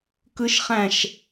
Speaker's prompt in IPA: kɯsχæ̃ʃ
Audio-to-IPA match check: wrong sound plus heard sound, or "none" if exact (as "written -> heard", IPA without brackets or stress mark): s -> ʃ